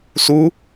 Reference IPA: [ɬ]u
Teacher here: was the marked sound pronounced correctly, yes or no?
no